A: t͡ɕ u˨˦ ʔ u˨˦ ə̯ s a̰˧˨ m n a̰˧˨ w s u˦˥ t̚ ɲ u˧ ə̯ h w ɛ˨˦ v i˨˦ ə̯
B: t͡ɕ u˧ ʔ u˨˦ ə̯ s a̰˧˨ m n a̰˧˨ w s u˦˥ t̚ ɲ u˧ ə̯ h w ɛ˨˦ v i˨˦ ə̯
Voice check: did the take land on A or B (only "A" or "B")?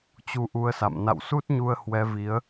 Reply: A